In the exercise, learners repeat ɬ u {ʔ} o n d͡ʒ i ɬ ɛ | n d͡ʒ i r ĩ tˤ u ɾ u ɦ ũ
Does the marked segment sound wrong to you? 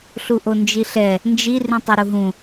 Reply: no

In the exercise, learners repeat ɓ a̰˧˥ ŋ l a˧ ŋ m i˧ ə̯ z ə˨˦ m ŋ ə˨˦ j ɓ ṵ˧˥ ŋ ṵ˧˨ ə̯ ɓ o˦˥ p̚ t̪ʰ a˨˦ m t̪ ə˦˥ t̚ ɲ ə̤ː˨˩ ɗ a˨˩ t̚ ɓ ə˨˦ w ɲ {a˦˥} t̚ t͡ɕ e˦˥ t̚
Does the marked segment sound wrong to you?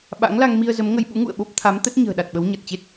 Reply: yes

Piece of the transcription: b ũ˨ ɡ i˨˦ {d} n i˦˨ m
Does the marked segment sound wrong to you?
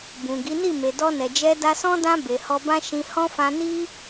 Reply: yes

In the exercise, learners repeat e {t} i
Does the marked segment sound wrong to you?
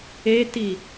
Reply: no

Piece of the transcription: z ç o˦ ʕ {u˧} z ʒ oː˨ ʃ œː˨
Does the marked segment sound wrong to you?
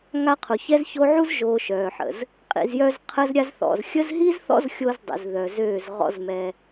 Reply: no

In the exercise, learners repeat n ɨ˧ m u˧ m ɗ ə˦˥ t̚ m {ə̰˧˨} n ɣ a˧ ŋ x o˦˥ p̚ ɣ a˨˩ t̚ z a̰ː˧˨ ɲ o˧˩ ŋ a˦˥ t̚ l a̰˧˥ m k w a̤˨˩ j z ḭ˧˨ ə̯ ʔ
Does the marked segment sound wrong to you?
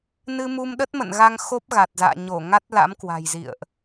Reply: no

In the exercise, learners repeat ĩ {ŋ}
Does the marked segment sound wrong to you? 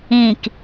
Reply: yes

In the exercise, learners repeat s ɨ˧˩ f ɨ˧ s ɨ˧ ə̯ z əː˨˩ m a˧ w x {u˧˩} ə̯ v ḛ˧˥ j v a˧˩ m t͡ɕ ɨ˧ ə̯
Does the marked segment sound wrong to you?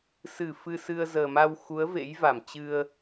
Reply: yes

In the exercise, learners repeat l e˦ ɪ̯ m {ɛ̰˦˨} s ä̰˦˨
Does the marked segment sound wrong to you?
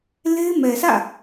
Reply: yes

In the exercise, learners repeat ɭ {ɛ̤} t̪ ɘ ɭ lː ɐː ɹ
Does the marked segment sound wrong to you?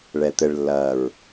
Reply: yes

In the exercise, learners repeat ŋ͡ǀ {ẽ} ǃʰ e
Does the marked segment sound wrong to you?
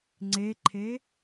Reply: yes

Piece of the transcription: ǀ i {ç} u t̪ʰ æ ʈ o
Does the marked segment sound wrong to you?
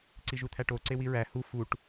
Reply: yes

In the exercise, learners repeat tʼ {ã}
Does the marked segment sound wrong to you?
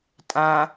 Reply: no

